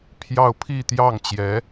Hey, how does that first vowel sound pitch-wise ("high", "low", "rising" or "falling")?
falling